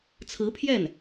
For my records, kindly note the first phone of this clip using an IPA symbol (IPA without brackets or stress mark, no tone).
t͡sʰ